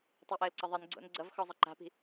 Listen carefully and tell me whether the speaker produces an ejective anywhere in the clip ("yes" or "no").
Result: no